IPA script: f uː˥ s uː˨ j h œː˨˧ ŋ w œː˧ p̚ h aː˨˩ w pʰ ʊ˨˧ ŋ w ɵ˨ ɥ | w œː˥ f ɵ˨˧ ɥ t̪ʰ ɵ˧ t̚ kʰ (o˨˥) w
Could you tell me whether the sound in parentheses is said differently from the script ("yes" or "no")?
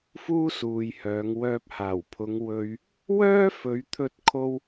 yes